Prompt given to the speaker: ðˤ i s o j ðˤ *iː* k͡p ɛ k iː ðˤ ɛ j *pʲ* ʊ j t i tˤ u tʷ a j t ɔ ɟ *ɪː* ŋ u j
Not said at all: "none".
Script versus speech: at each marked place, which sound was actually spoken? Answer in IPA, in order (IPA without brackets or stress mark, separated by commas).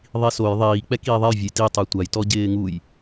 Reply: iː, vʲ, ɪː